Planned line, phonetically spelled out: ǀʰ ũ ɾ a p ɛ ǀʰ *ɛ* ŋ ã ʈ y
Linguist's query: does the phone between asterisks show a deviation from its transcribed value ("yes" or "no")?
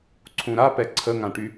yes